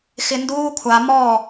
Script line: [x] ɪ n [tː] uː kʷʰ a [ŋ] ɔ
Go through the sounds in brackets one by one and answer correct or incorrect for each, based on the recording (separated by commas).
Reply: correct, incorrect, incorrect